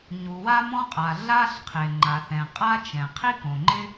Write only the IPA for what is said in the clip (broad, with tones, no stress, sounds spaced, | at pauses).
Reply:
ɲ u˩ w a˥ m ɔ̃˥ qʼ a˩ ɮ a˥ ɬ qʰ ɪ˩ ŋ͡ǃ a˩ θ ɛ̃˩ qʼ a˥ t͡ʃ ɛ̃˩ qʰ i˥ k õ˩ ŋ͡ǃ ɪ˥